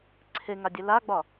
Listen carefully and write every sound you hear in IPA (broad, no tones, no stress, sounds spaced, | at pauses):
ǀʰ e ŋ a dʲ e l a ɡ͡b ɒ